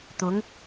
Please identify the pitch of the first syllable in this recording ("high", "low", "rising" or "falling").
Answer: rising